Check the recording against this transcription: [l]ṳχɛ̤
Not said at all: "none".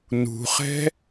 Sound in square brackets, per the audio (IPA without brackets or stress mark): n